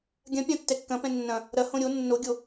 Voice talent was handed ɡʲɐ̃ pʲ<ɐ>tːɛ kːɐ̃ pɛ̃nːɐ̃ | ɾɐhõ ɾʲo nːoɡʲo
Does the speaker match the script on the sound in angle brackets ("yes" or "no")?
no